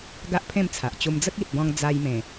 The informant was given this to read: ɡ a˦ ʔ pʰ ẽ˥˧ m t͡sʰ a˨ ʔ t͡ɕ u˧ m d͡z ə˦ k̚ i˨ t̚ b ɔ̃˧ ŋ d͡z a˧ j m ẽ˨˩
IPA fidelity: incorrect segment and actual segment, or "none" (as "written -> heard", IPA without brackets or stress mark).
none